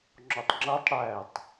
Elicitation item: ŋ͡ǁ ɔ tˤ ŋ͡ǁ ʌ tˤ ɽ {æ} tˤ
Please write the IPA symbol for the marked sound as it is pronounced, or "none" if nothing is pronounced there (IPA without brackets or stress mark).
æ